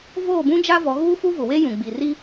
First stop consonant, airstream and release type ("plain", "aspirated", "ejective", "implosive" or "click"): plain